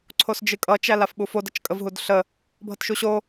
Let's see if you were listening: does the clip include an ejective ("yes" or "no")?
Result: yes